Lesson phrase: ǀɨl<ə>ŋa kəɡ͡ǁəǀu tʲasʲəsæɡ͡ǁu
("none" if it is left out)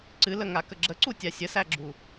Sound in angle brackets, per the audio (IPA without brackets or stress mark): ə